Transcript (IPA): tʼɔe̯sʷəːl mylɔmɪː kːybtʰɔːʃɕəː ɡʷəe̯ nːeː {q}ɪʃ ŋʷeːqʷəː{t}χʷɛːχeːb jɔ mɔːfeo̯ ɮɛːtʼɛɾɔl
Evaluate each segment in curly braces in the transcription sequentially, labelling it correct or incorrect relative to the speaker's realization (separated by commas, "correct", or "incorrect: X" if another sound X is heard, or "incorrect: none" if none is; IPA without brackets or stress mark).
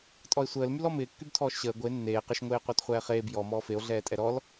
correct, correct